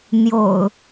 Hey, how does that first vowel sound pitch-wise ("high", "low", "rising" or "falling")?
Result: low